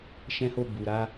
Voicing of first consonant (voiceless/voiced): voiceless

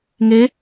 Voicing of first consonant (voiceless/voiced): voiced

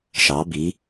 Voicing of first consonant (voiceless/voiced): voiceless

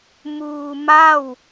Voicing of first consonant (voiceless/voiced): voiced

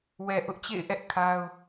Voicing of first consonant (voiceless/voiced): voiced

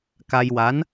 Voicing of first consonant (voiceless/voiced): voiceless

